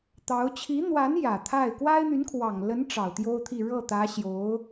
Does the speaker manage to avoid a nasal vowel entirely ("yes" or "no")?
yes